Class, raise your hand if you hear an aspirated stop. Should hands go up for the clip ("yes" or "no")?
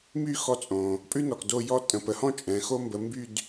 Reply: no